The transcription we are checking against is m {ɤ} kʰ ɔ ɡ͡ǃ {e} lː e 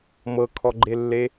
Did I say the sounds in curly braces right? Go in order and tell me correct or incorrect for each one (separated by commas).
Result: correct, correct